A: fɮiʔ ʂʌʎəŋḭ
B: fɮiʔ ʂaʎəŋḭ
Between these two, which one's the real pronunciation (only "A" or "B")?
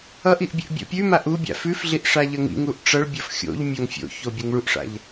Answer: B